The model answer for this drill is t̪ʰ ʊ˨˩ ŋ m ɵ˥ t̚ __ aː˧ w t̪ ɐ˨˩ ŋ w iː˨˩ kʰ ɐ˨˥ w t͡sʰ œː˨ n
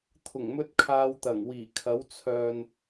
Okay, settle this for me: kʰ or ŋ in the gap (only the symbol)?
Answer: kʰ